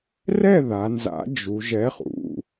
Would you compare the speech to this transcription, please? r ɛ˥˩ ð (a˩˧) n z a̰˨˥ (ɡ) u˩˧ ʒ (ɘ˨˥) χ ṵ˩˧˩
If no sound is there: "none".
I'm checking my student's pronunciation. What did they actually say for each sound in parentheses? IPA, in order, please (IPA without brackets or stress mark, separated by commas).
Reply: a˩˧, d͡ʒ, ɛ˨˥